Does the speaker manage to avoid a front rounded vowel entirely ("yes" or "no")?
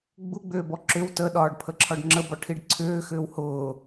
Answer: no